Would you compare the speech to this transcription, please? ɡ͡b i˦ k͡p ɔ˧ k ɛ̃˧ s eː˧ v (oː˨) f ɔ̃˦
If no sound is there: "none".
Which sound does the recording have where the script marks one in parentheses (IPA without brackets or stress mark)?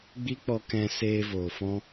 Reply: oː˨